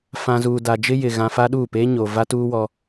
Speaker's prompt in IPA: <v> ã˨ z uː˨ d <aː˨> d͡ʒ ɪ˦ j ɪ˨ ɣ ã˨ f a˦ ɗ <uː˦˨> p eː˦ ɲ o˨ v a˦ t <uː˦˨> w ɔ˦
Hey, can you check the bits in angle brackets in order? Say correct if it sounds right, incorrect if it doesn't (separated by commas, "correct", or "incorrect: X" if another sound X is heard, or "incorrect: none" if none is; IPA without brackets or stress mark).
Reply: incorrect: f, incorrect: a˨, correct, incorrect: uː˦